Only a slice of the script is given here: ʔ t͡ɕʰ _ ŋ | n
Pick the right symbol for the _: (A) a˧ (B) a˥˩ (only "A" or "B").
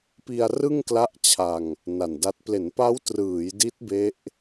A